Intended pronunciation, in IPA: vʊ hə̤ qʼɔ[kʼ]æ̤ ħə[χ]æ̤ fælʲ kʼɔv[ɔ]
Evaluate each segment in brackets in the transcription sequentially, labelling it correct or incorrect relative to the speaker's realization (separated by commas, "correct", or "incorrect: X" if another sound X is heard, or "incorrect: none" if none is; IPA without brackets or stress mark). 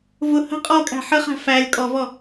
correct, correct, correct